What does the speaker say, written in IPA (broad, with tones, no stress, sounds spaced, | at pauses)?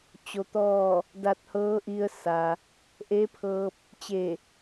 t͡ɕ o˧ t̪ ɔː˥˨ | d a˧ t̚ h ɤː˧˥ ʔ i˧ ə̯ s a˩ | ʔ e˧˥ pʰ ɤː˧ p̚ | t͡ɕ e˧˩